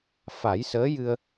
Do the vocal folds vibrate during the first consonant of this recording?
no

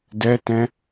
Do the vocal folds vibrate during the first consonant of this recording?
yes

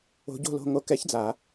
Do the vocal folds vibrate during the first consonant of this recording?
yes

